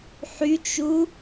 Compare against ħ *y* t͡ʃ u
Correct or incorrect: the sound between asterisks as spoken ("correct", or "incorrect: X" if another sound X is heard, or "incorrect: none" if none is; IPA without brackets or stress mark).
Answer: correct